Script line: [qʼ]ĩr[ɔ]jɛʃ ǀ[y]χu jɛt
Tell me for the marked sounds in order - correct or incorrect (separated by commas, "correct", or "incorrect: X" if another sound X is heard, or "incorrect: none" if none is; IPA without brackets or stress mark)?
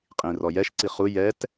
correct, correct, incorrect: i